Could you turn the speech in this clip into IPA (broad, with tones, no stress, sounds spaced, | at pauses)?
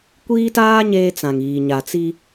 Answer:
kʷ iː˦ t aː˦ ɲ eː˦ t͡s ã˨ ŋ iː˨ ɲ a˨ t͡s i˦